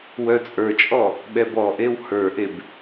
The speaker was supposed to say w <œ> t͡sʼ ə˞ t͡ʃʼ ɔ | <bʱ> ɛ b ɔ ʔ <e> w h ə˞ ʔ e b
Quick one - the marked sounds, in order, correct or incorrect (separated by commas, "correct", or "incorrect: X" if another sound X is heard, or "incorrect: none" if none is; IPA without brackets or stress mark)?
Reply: correct, incorrect: ɓ, correct